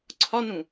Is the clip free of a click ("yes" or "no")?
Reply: no